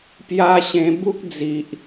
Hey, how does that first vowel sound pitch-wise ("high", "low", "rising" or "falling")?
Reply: high